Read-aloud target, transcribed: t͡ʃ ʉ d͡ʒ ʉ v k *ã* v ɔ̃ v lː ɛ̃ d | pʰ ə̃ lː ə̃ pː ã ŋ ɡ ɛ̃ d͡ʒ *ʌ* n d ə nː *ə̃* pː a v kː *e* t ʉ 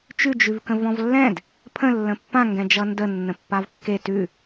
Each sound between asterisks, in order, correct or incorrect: incorrect: ə̃, correct, correct, correct

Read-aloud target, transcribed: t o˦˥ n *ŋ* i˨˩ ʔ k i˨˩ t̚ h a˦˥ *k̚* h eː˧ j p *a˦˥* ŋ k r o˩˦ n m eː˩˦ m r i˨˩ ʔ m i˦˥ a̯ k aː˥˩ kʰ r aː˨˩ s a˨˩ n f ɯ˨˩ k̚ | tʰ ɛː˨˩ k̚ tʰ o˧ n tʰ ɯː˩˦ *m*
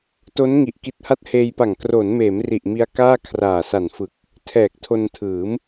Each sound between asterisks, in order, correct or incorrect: correct, incorrect: t̚, incorrect: a˨˩, correct

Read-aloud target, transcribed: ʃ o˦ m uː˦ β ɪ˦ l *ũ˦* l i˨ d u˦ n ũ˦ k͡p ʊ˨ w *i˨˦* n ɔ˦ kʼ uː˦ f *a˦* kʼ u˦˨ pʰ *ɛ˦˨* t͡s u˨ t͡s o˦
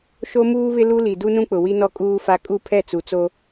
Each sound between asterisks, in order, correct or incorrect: incorrect: u˦, incorrect: i˦, correct, correct

